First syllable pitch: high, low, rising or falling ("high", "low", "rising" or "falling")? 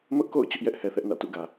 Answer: high